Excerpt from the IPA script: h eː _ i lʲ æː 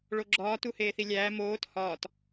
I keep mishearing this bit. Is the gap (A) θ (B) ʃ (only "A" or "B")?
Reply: A